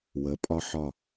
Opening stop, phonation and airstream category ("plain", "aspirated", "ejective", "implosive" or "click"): ejective